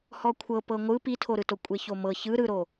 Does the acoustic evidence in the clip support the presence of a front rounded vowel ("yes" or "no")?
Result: no